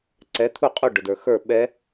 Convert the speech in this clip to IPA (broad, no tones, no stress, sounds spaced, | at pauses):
ǀ ɛ t̪ʰ u qʼ u ɖ ʊ d ə˞ x ə˞ ɓ ɛ